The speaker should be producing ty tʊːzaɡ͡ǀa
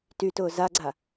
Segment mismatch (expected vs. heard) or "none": none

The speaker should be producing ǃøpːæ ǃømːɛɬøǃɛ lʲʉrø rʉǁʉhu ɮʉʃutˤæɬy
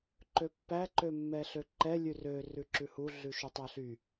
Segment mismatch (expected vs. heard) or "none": none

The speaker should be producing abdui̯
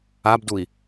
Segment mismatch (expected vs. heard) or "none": none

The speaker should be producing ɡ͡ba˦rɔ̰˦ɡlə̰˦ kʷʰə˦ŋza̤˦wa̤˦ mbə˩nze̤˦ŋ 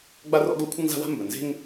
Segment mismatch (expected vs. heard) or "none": none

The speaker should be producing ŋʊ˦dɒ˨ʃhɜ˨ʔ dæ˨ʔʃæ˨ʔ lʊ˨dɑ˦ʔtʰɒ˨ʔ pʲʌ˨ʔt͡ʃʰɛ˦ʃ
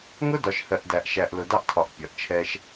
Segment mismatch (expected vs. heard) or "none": none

